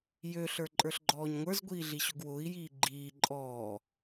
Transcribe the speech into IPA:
jøɬə˞ǃʼə˞ɬɡ͡ǃɔːɲ ŋʷə˞zɡʷiːɮi ɕʊɡwʊːi̯ jiːɡ͡ǃiː ǃʼɔː

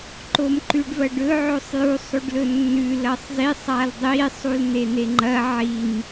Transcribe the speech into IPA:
ǃomǃʉɖvɐɖɵ ʕosˤjusˤ ʉɖlɵnːʉ lɐsˤzisˤ aldˤi sˤuln̪en̪eŋ͡ǃɐ ʕim

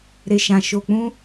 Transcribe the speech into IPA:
ɾe˨ʃã˨ʃo˨ k͡pũ˧

